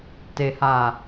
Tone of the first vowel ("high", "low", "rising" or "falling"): low